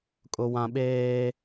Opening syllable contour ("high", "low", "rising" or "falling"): high